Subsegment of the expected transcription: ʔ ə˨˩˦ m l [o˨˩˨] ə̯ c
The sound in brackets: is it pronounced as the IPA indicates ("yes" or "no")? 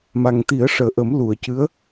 no